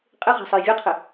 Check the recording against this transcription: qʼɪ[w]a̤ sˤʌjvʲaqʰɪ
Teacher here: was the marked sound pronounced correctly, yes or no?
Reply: no